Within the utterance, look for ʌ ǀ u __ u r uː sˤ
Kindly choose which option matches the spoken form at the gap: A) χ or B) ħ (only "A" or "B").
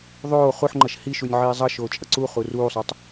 A